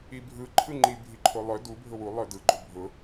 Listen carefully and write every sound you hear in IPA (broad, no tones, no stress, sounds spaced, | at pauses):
i bʱ ɯ ǃʰ ɯ ŋ͡ǃ i bʱ i ǃʰ o lˠ œ d u bʱ ʊ w u lˠ œ d ɯ ɡ͡ǃ ʊ bʱ ʊ